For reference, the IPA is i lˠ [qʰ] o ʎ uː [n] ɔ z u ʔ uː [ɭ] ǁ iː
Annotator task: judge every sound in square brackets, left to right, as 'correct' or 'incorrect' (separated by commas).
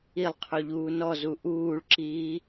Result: correct, correct, correct